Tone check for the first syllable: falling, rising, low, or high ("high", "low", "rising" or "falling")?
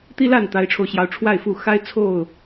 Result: high